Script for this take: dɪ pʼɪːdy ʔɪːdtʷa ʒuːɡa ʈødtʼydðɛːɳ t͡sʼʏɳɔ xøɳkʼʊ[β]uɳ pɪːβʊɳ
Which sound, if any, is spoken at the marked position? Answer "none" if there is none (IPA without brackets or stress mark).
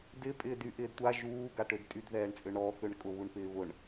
β